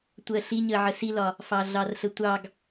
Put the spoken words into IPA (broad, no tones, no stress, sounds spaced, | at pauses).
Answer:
tʷ ɜ ɬ i ɲ ə ʕ ə s i l ɒ | f ɑ ɮ ɑ r ɬ ə tʷ ɑ ɡ